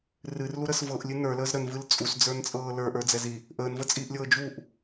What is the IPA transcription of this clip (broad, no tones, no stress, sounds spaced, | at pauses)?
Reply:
r ɨ r l u ɾ ə s v ɤ ʔ lʲ ɨ n ə˞ l əː z ɾ ə n v ɨ l t͡sʼ u s d͡z ə˞ n t͡sʼ ɤː l ə˞ ʔ ə˞ d͡z ɛ z i | ʔ əː n v ə t͡sʼ iː ʔ lʲ ɤː d͡ʒ u ʔ